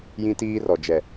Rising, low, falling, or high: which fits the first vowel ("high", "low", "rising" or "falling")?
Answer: high